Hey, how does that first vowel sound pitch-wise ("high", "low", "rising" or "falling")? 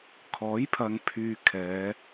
rising